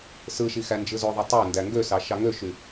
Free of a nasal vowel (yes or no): yes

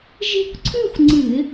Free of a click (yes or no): no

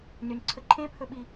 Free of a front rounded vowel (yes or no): no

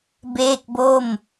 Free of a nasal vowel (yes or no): yes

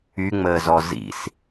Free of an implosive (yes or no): yes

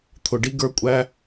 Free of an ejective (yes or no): no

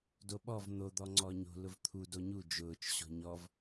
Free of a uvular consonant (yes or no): yes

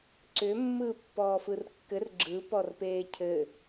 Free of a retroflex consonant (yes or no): yes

